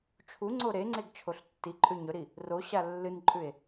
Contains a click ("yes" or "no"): yes